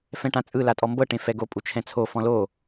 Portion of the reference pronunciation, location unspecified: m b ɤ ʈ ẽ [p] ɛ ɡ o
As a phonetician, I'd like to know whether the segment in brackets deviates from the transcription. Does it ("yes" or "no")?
yes